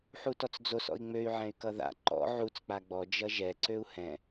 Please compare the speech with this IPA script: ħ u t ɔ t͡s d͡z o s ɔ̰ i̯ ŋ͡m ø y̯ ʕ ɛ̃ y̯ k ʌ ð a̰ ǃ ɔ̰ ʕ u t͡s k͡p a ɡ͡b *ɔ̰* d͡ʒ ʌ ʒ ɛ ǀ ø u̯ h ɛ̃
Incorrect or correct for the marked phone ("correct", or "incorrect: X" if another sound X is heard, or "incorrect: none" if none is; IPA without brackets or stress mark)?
incorrect: ɔ